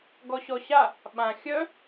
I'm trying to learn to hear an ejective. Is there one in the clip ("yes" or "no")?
no